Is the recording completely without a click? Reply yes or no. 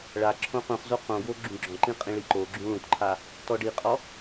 no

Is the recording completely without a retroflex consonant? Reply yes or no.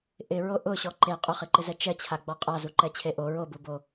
yes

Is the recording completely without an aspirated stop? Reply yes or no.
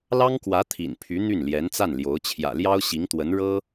no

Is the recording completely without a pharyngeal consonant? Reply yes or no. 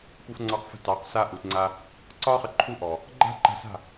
yes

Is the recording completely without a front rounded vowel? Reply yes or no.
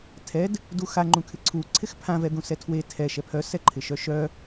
no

